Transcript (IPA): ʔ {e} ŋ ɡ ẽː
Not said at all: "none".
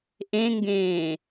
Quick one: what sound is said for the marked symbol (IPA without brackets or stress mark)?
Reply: ẽ